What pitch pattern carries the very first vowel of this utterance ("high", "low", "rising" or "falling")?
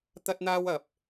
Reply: high